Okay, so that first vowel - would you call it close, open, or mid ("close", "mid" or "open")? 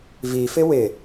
close